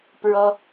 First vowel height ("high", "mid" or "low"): mid